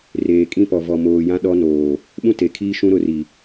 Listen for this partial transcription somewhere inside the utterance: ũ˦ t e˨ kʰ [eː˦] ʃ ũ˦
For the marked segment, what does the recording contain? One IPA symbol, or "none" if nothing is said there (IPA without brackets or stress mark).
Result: iː˦